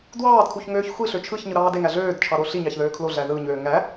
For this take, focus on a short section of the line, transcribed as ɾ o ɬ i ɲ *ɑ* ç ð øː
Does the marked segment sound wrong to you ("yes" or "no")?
no